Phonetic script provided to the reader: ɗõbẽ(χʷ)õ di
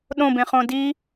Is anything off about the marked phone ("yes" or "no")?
yes